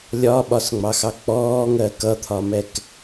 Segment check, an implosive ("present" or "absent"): present